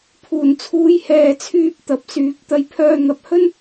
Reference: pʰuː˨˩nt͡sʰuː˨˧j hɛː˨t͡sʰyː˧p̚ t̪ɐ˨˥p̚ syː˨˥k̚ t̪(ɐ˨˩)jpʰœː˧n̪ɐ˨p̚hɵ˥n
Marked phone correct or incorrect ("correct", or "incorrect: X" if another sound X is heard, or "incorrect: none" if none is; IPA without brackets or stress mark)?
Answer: incorrect: ɐ˧